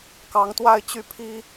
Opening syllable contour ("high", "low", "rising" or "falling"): rising